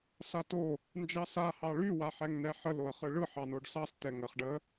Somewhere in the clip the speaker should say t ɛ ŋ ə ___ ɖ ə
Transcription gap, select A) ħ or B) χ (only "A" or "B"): B